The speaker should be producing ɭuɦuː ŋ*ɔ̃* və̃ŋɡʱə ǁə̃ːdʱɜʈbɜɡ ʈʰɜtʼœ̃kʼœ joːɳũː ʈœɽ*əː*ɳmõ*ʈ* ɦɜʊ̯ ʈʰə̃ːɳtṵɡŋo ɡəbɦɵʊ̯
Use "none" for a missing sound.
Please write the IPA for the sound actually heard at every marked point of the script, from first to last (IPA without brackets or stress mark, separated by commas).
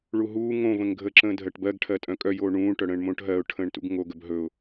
õ, ə̃ː, ʈ